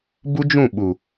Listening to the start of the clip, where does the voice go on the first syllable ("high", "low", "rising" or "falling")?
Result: high